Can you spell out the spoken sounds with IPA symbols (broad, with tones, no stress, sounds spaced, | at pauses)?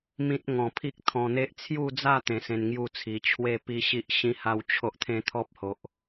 m ĩ˦ t̚ ŋ ɔ̃˧ pʰ i˦ k̚ t̪ʰ ɔ̃˧ n̪ e˦ ʔ t͡sʰ j u˥˧ d͡z a˥˧ t̪ ẽ˧ s ẽ˧ n ŋ j u˥˧ t͡sʰ i˨˩ t͡ɕʰ w e˥˧ p i˦ ɕ i˦ ʔ ɕ ĩ˦ h a˦ w t͡ɕʰ o˦ ʔ t̪ʰ ẽ˦ t̪ʰ ɔ˦ p̚ h o˨ ʔ